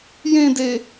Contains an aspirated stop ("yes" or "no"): no